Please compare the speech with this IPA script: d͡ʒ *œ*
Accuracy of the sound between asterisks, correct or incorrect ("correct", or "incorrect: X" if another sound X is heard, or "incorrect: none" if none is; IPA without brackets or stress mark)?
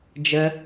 incorrect: ə